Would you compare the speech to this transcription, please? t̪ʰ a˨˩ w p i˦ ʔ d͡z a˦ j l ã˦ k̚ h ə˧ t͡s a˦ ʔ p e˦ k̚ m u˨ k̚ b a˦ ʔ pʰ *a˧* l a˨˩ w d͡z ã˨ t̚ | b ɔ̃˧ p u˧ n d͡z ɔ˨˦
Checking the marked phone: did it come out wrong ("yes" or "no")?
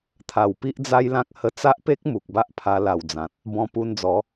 no